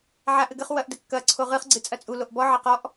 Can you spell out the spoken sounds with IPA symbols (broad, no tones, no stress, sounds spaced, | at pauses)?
ʕ a ʔ ɘ ɡ ɘ χ w ɐ ʔ d ɘ kː ɐ ǀʰ o ʁ ɨ χ ɡ͡ǀ ɨ t͡sʼ ɐ t͡sʼ u l o ʔ b ɔ ʕ ɐ q ɔ ʔ